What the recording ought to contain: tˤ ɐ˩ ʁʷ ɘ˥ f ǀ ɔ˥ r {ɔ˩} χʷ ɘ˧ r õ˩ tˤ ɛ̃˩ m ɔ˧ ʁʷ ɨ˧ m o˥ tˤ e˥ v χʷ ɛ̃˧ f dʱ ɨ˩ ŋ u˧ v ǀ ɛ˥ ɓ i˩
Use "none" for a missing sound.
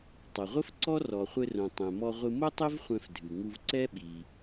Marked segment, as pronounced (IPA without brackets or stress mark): ɔ˩